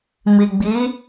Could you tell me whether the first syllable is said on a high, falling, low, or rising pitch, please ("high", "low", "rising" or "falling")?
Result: low